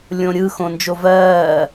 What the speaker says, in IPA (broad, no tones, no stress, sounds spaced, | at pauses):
lʲ õ ɾʲ ɯ x õ n d͡ʒ o v ɜː